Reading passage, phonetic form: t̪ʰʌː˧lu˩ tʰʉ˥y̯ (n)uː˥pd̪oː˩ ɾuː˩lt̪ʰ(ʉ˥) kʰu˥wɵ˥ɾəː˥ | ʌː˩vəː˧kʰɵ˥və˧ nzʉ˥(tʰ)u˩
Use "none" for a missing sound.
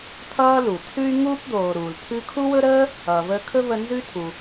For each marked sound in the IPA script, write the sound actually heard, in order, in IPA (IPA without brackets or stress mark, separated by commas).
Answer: ŋ, ʉ˥, tʰ